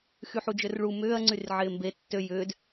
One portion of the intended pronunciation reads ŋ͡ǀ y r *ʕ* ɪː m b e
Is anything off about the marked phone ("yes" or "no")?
no